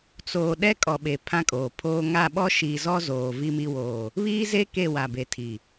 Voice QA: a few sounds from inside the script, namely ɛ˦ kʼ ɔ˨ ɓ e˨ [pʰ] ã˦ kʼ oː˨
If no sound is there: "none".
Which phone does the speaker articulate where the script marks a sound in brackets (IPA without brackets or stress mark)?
pʰ